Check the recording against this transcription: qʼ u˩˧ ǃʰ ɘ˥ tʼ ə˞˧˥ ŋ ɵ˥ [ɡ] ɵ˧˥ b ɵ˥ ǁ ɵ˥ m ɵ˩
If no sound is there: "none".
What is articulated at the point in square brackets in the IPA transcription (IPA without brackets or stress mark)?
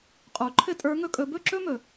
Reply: kʼ